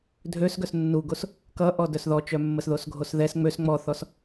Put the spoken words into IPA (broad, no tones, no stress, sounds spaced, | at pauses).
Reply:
dʱ ø s ɡ œ s nː u ɡ o s | k ʌ ʔ ɔ d œ s ð ɔ t͡ʃ œ mː ə s ð o s ɡʱ o s ð ɛ s ŋ͡m ø s ŋ͡m ɔ θ ɔ s